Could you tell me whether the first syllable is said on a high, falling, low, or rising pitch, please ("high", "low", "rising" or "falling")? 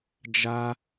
high